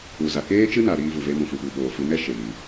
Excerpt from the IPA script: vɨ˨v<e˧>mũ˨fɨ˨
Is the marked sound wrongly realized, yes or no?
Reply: no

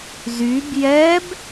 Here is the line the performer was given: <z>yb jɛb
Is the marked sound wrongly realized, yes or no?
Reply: no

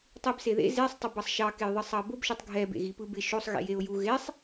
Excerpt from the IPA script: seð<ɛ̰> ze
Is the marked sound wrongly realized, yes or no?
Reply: yes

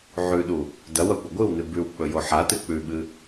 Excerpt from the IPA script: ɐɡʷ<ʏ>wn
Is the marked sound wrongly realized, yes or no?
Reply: yes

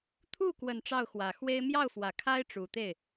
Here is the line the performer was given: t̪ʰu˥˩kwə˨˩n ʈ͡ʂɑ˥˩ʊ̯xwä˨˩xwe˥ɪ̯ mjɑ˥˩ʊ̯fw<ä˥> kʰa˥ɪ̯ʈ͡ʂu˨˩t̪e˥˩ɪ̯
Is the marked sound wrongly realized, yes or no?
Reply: yes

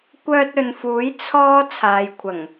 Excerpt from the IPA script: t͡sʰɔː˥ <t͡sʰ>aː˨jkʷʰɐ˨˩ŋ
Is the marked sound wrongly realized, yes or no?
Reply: no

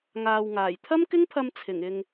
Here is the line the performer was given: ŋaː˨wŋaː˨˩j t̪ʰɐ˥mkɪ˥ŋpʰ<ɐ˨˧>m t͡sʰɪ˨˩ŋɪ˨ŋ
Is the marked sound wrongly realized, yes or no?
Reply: yes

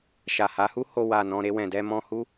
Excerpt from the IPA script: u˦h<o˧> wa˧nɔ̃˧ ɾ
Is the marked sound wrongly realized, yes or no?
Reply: no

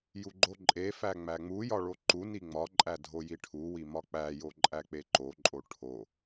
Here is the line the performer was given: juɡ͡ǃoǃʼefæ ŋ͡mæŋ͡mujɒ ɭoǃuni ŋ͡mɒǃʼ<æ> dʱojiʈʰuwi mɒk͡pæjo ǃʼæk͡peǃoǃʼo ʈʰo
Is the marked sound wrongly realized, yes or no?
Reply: no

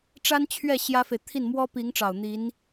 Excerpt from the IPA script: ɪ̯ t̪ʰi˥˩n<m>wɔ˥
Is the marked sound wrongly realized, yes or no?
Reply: no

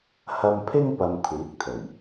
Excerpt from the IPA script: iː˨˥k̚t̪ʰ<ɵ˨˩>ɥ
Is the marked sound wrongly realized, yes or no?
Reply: no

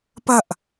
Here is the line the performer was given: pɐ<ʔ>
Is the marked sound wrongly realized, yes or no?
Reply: no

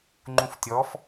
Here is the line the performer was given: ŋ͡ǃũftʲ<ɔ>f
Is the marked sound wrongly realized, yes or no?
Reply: no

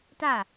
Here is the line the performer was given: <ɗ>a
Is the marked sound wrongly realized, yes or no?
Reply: yes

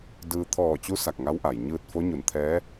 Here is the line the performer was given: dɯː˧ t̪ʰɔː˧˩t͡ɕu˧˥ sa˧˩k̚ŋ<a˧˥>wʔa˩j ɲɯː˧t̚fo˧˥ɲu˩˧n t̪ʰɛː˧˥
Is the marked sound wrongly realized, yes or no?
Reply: no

